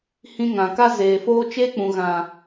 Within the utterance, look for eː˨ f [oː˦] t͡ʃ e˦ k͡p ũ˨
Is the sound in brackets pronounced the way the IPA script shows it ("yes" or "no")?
yes